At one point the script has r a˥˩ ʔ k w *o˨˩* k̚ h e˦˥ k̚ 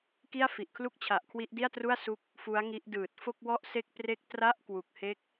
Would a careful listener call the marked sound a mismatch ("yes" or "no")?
yes